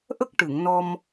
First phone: ʔ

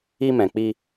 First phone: i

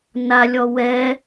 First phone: n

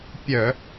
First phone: pʲ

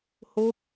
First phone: h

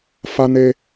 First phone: f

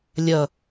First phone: lʲ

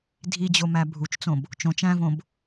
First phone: dʱ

